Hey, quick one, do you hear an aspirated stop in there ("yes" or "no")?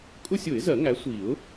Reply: no